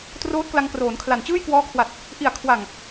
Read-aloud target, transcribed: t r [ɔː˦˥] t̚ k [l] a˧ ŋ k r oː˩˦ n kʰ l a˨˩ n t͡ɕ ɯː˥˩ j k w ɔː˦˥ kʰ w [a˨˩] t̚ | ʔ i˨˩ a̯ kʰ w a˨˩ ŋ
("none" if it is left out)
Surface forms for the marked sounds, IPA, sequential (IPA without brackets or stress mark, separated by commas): oː˦˥, l, a˨˩